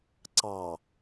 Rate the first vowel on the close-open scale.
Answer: open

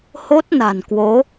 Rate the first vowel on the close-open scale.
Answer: mid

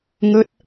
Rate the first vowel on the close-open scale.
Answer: mid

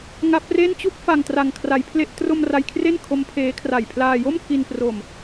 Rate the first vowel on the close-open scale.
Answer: open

